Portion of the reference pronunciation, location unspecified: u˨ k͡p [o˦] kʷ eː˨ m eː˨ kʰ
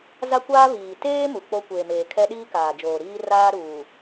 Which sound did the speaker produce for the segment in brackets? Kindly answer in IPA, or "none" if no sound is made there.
o˦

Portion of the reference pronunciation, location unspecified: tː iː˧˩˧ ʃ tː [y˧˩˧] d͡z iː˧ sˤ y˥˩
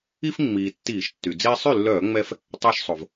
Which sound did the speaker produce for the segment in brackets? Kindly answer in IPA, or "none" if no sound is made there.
y˩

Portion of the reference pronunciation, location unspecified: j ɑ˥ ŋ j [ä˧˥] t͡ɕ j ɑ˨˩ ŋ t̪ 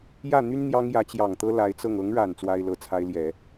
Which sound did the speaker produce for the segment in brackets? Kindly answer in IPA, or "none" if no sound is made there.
ä˧˥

